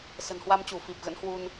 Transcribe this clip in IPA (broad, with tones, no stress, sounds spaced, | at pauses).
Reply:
s ə̤˨˩ n h w a˧ m t͡ɕ u˧˩ f i˨˩ p̚ ɣ ə̰˧˥ n h w u˧ n